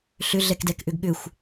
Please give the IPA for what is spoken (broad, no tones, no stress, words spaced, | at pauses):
ɬʏɮɛkdɛkʔʏɡ ɠʏxʷ